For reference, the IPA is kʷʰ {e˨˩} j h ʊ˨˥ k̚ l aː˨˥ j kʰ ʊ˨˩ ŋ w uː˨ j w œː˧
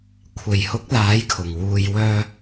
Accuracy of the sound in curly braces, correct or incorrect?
correct